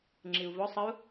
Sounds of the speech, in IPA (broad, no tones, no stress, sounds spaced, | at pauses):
ŋ͡ǁ i u̯ v ɔ sˤ ə u̯